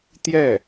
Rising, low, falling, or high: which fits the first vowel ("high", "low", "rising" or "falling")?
falling